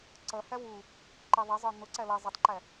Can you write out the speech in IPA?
ǀ ʌ h æ w u | ǃ i ðˤ ʌ zˤ ə˞ n̪ ʊ ǀ æ l ʌ zˤ ʌ tˤ ǃ æ

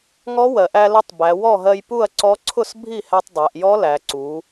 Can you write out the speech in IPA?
ŋ ɔ˧˥ w ɜ˩˧ ʔ æ˧ l ə˧ tˤ b æ˩˧ w ɔ˥˩ ɦ ɜ˧ j p u˥˩ ɐ̯ ǀ ɔ˧˥ ǀʰ ʊ˥˩ s bʱ i˥˩ h æ˧ tˤ dˤ æ˩˧ ʔ j ɔ˧˥ l æ˩˧ ǀ u˩˧

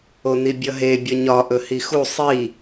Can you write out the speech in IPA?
o n i bʲ ʌ ɦ e bʲ ʌ ɲ ɒ ʔ ɵ h i x u sˤ i

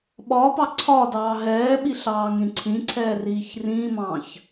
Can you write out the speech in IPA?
ɓ ɒː p ɑ ǀʰ ɒː d ɑː ɦ ɛː ɓ i ɬ ɑː ŋ ɾ ĩ ǀʰ ĩ ǀʰ ɛː r iː ç r ĩ m ɑ̃ː ç

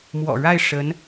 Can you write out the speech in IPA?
m w ɔ̰˨˩ ɻ a˥˩ ɪ̯ ʂ ə˧˥ n

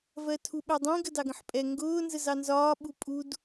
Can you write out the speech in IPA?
v ɜ tʰ u ɓ ɛ dˤ ĩ ɡ ə d ɑ ɡ ə̃ ħ pʼ ɛ ŋ ɡ ʊː n z ə z ɑ n z ɒː ɓ u pʼ u d

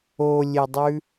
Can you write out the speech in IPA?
o lʲ e dˤ ʉ

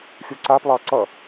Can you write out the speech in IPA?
xʲ u ǀ a p lˠ ɑ ǀ ʌ

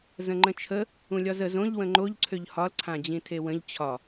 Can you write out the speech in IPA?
z ə̃ ŋ͡ǃ ə̃ t͡ʃʰ ə | ũ lʲ ɒ z ə z õ ʎ w ə̃ ŋ͡ǃ o ʎ ǀʰ ø ʎ h ɒ l ǀʰ ã d͡ʑ ĩ tʰ e w ə̃ ʎ t͡ɕʰ ɒ

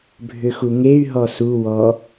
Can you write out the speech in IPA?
bʱ ʏ x u ŋ e y̯ ɦ ɔ s u w ɔ

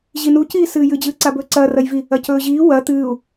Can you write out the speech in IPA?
ʑ i n u c iː s ɨː j ɨ d͡ʑ ɨː ǀ a b ɵː ǀ ɐː r ɐ j v i | ɐ c ɵː ʑ iː w ɐ t̪ ɨː u̯

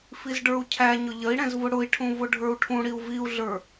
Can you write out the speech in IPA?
f i z ɖ ə˞ u̯ cʰ æ ɲ ʊ ʎ ə i̯ ɽ ɛ̃ z v ʊ ɽ ʊ i̯ ʈʰ ũ v ʊ ɖʱ ə˞ u̯ ʈʰ ũ ɽ i u̯ v i u̯ ɮ ə˞

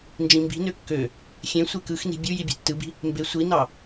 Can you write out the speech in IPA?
n d͡ʒ ĩ m b i̤ n ø kː ø | xʲ ẽ sʷ e k ɯ x n i̤ bʲ u j i bʲ e̤ tː ɯ b i̤ | m b e sʷ i n ɑ

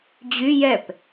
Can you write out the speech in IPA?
d͡ʑ y j ɛ p

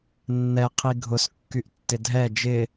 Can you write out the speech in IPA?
nː ɛ qʰ i ɡʱ ʊ s kː y ʔ tː ɪ dʱ ɛ d͡ʒ ɪ

